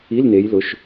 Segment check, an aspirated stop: absent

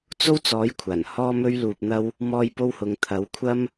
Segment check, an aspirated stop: present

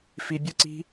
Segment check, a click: present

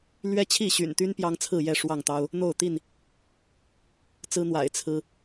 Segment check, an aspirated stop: present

